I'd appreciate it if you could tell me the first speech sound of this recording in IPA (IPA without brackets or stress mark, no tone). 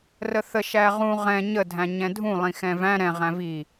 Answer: r